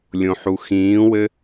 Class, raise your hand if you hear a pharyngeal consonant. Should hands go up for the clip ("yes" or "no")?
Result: yes